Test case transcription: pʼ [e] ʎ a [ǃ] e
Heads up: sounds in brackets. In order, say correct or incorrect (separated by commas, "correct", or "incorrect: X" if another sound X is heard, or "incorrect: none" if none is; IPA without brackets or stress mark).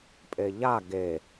correct, incorrect: ɡ